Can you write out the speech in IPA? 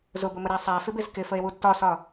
z ʊ b ʊ m ə ɾ æ sˤ æ f ɪ b ɪ z k ɪ f ə e̯ w u d t ɒ s ɒ

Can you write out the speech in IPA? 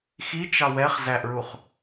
x i t͡ʃ ɑ w ɛ χ z æ ʔ ɹ u χ

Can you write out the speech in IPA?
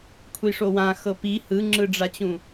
kʷʰ i ʂ o w ã x ɤ p i h ɯ ŋ͡ǁ ɯ ɖ͡ʐ a t͡ɕ ũ

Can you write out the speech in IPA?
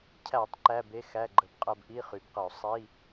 cʰ æ˧˩˧ tˤ ǃ æ˧˥˧ b e˧˥˧ x æ˧˥˧ ɡ͡ǃ ə˧˩˧ b qʼ ɜ˧ b ʔ i˧˥˧ χ y˩˧ b q ə˧˩˧ o̯ sˤ i˧˥˧

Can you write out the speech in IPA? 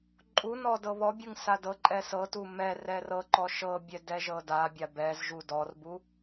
ǃʼ u n ɔ d ɤ β ɔ bʲ ɯ ŋ s a d ɤ ǃʼ ɛ s ɤ t u m ɛ r ɛ r ɤ ǃ ɔ ʃ ɤ bʲ ɛ d ɛ ʒ ɤ d a bʲ a b ɛ z ʒ u d ɔ r b u

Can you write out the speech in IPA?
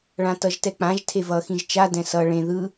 ɭ ã t ʌ ʒ t ɛ k͡p ã ʒ tʰ e v ʌ x ĩ ʒ t͡ʃ a d ɛ̃ s ʌ ɭ ẽ ð ɯ

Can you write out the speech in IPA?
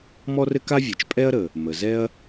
m ɔ˥ r ɘ˥ k a˥ vʲ ɛ˩ t͡ʃ pʼ ɛ˥ ɐ̯ ɾ ə˩ | m ə˩ z ɛ˥ ɐ̯

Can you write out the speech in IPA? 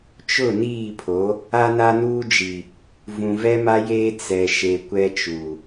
t͡ʃ ʊ˦˨ n iː˦˨ pʰ o˨˦ | a˦ n a˦ n uː˦ d͡ʒ i˨ | v ũ˨ v ɛ˦ m a˦ j eː˦ t͡s ɛ˨ ʃ e˨ kʷ ɛ˦ t͡ʃ u˨

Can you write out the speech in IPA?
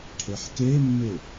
ʈʰ e ħ k e mː e

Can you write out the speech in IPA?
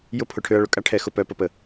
j ʊ˦ pʰ ʊ˨ ʈʰ ø˧ ɐ̯ ɭ ʊ˨ kʼ a˦ ʈʰ ɛ˧ x ʊ˧ p œ˧ p ə˧ p ə˨

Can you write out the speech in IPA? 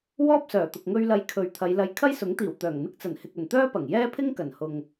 w ɔː˥ p̚ s œː˨˩ t̪ ʊ˨ k̚ ŋ ɵ˧ ɥ l ɐ˧ j kʰ ɵ˨ ɥ t̪ʰ ɐ˨˧ j l ɐ˧ j kʰ ɐ˥ j s ʊ˨˥ ŋ t̪ iː˨˩ w t̪ œː˨˩ ŋ n̪ ɪ˥ k̚ t͡s ɐ˨˩ n h ɪ˨ k̚ ɵ˨˩ n t̪ œː˥ p ɐ˨˩ ŋ j ɛː˥ pʰ ɪ˥ ŋ k ɐ˨˩ n h ʊ˨ ŋ

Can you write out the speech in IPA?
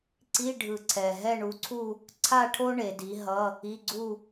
ǀ i˧˥˧ ɖʱ ɯ˨˩ ǀʰ ɛ˨˩ ɦ ɛ˥˧ ɳ u˨˥ ǀʰ u˥˧ | ǀʰ a˥˧ ʈʰ o˥ ɳ e˩˧ d i˨˥ ɦ ʌ˧˥˧ | i˧˥˧ ɡ͡ǀ u˥˧

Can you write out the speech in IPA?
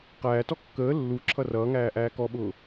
q æː t ɔ kː əː lː u ǁʰ ʌ r ʌː ŋ æː ʔ æː k ɔ ɓ ʊː

